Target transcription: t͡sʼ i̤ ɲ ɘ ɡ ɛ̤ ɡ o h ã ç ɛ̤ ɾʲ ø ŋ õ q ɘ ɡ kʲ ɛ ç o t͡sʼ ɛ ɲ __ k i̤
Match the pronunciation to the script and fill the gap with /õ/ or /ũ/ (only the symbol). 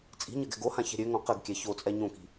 õ